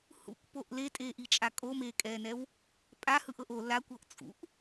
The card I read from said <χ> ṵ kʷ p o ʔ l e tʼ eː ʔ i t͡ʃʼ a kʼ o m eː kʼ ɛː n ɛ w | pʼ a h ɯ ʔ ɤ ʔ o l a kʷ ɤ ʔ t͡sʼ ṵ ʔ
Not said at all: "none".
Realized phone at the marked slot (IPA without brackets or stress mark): h